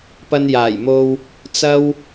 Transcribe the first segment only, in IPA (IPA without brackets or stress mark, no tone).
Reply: p